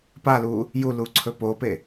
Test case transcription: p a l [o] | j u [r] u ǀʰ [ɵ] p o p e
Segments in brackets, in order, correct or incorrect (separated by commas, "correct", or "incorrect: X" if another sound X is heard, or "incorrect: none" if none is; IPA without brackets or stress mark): incorrect: u, incorrect: l, correct